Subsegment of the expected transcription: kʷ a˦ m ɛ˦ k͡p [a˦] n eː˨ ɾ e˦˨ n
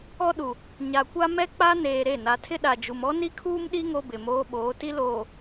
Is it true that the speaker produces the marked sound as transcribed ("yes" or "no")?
yes